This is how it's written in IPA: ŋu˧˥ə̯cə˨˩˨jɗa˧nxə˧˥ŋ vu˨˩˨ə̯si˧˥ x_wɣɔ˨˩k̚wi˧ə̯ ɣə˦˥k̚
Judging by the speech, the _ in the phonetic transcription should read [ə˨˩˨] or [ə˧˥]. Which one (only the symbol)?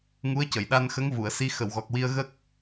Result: ə˨˩˨